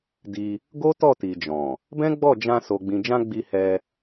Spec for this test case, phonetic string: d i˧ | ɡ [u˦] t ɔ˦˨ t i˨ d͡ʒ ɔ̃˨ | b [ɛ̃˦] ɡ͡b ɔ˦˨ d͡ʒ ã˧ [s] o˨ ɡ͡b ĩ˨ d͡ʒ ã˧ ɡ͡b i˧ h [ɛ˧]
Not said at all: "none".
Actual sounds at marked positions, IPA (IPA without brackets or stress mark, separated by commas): o˦, ɛ̃˦, s, ɛ˧